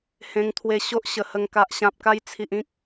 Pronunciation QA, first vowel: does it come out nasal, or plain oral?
nasal